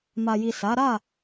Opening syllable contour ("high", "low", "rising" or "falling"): low